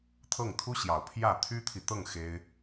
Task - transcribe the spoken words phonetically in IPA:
t̪ʰ ɤ˥˩ ŋ t̪ʰ u˥ ɕ j ɑ˨˩ ʊ̯ pʰ j ä˥˩ t̪ʰ y˥ t̪ʰ i˨ t̪ ɤ˥˩ ŋ x e˥ ɪ̯

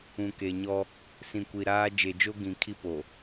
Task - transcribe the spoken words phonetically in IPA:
ũ˨ k e˨ ɲ ɔ˦ | s ĩ˨ kʷ i˨ ɾ aː˦ d͡ʒ e˨ d͡ʒ o˦ ɡ ĩ˨ kʰ i˦ p o˨

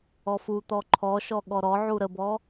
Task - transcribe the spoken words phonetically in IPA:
ɔ f u t̪ ɔ ǃʰ ɔ ʃ ɔ ɠ ɔ ɾ ɔ ʕ u ɾ ə b ɔ

